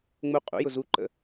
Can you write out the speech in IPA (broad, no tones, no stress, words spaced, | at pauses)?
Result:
ŋ͡mu qʼṵjʊ zuǃə̰